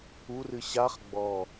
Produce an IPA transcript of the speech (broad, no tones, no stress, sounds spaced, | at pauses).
u r ɨ ɕ a χ ɡ͡b ɔ